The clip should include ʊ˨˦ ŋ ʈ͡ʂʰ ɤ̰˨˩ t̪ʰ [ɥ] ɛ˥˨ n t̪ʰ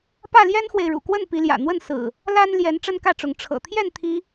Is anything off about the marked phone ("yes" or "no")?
yes